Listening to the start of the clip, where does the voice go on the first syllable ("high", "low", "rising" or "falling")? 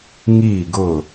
falling